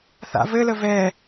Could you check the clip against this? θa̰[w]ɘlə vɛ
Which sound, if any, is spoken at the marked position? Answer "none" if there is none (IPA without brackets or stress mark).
v